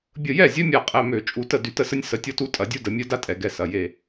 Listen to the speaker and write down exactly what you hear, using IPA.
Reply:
bʲ ə˧˩ j ɛ˥˩ zʲ œ˦ mʲ a˧˩ qʼ ɛ˩˧˩ m ø˧˩˧ t͡ʃʼ u˧˩ t ə˥˩ d y˧˩˧ t ə˦ s ə˦ nʲ s ə˩˧˩ tʲ ɔ˦ t u˦ tʼ ɐ˧˩˧ dʲ u˦ d ə˧˩˧ mʲ œ˦ d a˦ tʼ ɛ˧˩˧ ɡ ɛ˩˧˩ s ɐ˩˧˩ j e˧˩

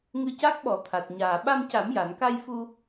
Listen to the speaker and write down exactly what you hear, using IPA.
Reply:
ŋ ɨ˧ c a˦˥ k̚ ɓ ɔ˨˩˦ t̪ʰ a˨˩ t̚ ɲ aː˨˩ ɓ a˧ m c a˨˩˦ m j a˨˩˨ n k a˧ j f u˧

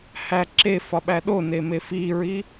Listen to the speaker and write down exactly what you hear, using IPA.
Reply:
h æ ǁ e f ɒ ɓ æ ɗ o n e m e f i ɹ i

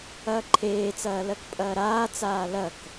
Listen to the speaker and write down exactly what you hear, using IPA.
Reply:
ɐː ǃʰ eː t͡s ɐː l ɜ k pʼ ɐː ɾ aː t͡s aː l ɐ k

